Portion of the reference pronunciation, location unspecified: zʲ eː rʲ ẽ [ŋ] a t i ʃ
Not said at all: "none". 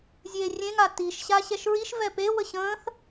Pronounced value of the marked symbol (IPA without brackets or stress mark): ŋ